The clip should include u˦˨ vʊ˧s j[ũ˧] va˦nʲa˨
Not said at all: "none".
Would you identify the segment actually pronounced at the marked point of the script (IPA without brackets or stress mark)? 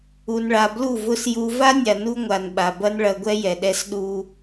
u˧